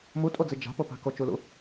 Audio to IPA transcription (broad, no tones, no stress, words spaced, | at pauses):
mutʼod͡zi d͡ʒa̤popa̤ kot͡ʃulṵ